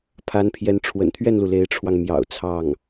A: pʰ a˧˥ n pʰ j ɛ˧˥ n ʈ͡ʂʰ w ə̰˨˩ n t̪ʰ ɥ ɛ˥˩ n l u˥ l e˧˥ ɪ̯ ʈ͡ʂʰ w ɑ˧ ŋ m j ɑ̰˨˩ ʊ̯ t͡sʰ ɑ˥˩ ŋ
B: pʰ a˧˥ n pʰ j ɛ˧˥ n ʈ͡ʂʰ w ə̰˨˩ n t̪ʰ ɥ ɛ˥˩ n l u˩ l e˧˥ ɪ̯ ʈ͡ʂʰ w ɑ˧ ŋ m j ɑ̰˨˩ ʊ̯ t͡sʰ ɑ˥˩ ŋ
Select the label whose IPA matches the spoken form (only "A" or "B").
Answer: B